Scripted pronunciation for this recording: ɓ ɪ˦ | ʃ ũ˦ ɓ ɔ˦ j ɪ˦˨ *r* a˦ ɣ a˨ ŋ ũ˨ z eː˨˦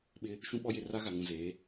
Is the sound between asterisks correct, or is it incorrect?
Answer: correct